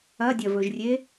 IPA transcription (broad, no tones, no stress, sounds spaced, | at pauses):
ɐ dʲ ɐ v ɵ ʒ rʲ e